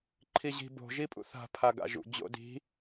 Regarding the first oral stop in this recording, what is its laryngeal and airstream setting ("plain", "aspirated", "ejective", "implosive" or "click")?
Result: click